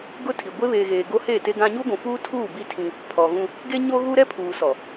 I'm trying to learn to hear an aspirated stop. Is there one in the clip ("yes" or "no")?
yes